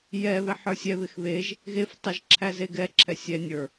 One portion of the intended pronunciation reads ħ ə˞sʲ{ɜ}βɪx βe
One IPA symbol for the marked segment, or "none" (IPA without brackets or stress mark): ɛ